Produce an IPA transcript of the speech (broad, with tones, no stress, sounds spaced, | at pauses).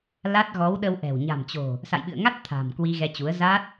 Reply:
l a˦˥ t̚ ɣ ɔ˨˦ w ɗ ə˧ w ʔ ɛ̤˨˩ w ɲ a̤˨˩ m t͡ɕ o̤˨˩ | s a̰˧˨ j ɓ ɨ̰˧˨ ə̯ ŋ a˦˥ t̚ t̪ʰ a̤˨˩ m k w i˧ ɣ ɛ˧ t͡ɕ u˨˦ ə̯ z a˦˥ t̚